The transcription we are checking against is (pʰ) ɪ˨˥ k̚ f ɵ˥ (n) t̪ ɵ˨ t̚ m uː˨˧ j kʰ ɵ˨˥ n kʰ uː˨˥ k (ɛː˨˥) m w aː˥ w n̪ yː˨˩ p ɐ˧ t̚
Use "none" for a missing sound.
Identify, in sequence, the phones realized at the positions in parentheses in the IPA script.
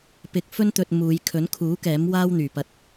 p, n, ɛː˨˥

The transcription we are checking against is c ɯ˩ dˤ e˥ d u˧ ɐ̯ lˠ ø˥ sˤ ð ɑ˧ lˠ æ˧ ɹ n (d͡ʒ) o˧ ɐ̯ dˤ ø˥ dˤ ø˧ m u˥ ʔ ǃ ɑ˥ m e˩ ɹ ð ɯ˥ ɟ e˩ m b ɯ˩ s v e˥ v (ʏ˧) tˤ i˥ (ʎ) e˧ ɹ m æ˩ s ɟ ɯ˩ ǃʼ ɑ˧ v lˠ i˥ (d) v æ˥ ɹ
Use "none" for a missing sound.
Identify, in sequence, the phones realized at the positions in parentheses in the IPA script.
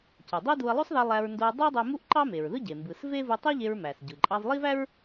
d, u˧, ʎ, none

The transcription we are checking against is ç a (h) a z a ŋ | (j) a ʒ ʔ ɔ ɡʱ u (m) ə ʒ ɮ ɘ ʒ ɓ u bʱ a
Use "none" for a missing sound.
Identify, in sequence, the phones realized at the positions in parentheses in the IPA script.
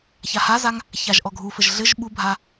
h, ç, f

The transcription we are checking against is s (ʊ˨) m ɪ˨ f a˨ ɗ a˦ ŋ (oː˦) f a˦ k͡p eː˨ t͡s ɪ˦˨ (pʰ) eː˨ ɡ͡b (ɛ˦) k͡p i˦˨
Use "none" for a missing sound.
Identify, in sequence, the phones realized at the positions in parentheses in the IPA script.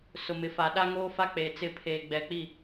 ʊ˨, oː˦, pʰ, ɛ˨

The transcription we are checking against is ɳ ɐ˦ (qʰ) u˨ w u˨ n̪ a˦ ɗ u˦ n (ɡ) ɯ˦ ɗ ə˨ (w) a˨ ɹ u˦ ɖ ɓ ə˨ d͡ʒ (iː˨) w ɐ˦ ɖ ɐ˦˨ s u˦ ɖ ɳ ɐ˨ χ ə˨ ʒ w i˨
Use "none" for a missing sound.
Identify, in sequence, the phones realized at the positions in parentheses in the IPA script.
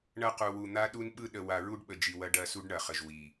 q, ɓ, w, i˨

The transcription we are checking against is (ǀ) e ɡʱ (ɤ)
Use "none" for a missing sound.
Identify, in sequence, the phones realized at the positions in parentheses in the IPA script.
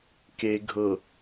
k, ɤ

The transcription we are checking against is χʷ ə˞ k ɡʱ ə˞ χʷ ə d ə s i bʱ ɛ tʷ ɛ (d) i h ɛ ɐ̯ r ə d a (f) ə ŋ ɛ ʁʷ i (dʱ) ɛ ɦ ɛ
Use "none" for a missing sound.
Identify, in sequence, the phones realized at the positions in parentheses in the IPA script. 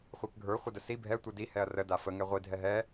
d, f, dʱ

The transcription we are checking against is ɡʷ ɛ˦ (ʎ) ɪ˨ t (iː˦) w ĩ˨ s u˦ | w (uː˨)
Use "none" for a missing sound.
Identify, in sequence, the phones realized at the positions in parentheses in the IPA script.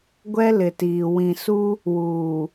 l, iː˨, uː˨

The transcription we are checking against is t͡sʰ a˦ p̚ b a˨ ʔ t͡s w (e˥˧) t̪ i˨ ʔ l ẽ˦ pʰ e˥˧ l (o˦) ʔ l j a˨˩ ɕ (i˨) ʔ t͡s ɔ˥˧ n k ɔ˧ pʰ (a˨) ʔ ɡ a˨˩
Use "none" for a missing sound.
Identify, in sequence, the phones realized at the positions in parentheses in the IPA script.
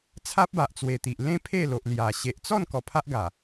e˨˩, o˨, e˨, a˦

